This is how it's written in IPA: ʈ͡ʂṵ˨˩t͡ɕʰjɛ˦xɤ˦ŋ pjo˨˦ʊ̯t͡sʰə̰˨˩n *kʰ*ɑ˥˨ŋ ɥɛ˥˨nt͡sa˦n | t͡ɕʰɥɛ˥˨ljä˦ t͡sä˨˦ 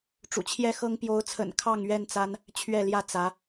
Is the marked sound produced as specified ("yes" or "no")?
yes